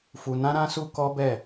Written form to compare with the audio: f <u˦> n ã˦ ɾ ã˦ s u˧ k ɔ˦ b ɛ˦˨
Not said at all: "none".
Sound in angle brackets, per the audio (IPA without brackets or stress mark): u˧